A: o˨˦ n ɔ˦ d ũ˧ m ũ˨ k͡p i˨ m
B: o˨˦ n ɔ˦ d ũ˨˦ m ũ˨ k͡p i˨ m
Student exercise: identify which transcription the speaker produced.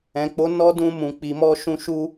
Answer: A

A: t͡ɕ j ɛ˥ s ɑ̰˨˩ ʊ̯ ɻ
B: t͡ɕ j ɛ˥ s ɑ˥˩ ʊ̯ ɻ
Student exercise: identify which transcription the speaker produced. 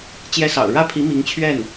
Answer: A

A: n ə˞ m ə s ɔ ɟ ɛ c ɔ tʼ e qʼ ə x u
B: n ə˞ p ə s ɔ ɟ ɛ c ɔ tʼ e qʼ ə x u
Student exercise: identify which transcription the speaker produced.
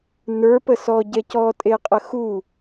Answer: B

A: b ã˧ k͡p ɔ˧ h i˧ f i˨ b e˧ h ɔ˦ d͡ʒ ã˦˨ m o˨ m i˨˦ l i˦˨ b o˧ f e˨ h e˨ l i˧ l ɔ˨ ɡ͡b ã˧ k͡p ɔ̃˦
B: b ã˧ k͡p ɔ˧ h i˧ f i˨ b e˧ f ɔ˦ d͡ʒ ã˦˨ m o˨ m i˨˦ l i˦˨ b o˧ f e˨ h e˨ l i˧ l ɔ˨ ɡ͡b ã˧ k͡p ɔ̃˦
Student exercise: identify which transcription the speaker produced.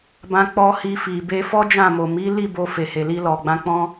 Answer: B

